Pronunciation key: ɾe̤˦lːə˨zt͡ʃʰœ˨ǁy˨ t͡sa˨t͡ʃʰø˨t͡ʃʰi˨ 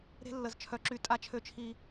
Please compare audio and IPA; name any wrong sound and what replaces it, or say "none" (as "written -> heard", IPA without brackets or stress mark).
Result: t͡s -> tʼ